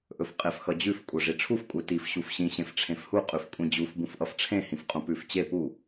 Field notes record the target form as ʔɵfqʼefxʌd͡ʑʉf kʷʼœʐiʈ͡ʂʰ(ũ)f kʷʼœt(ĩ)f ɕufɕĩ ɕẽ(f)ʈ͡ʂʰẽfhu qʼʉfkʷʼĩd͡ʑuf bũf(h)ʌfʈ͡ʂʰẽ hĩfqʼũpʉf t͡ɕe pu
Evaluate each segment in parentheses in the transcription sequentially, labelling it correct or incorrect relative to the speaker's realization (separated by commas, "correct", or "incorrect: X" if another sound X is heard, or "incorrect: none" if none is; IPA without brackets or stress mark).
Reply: incorrect: u, incorrect: i, correct, incorrect: ʔ